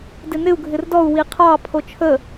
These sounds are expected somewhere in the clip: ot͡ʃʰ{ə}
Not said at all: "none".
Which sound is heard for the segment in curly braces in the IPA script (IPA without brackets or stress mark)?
ə